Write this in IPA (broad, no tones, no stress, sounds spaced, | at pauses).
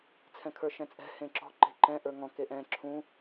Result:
t͡sʰ ɛ̃ kʰ ə˞ ʃ ɛ̃ t͡sʼ ɛ̤ h ẽ ǁ ɔ̤ ǃ e̤ ǃ ɛ̃ ʔ ə˞ ŋ ɔ̃ k e ʔ ɛ̃ ǁʰ ũ